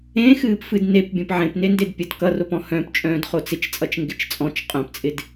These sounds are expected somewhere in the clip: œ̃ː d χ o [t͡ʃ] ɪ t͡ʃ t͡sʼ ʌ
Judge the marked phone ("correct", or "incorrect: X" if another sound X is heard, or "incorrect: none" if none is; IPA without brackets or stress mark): incorrect: t͡s